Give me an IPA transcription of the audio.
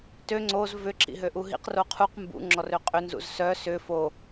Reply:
tø ŋ͡ǀoz vʏ ǁḭɦøʔuɦḭq roqʰuq mbṵ ŋ͡ǁɔrøqʼʏ nzṵzsœ sʏ fo

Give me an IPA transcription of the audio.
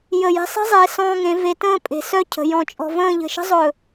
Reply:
jə˧˩ je̤˧sˤe̤˥zˤeː˩˧ sɔ̃ː˧ŋẽ˩˧ ve˧ tə̃ː˥˧pʼe̤˩˧ sœ˥cʰə̤˩˧ jɔ̃˧˩t͡ʃʼɔ̤˧və̃ː˥˧ ʎə̤˧˩ʃə̤˥zˤɵː˧˩

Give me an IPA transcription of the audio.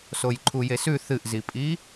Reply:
sojǃʰujesʉ θɨʔzipʼi

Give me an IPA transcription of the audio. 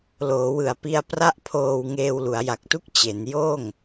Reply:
loː˩˦wɯ˨˩a̯pi˧a̯ pra˥˩ʔpʰoː˧w ŋeː˧wlu˩˦a̯ja˨˩k̚tu˥˩k̚ t͡ɕe˩˦njoː˥˩ŋ

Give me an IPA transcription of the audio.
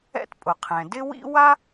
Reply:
ɛ̰˥t pʼʊ˩qʰɛ̃˩ dɪ˥wḭ˥ wa˥

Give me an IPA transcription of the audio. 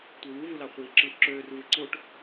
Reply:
tʷewuvulɑ χʷiːǁɯʔ ǁøːr vɯǀoʈ

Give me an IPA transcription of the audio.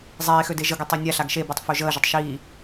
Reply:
zˤeːxøde ʒəɡøtˤɛ nʲaɬaɡ ʃebʉtˤfø ʒəːʒətˤ ʃiː

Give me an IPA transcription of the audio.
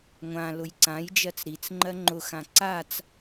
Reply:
ŋʷã lʊjǀãjd͡ʒɜt͡s ɾit͡s ŋ͡ǃɜŋ͡ǃʊxã ǀat͡s

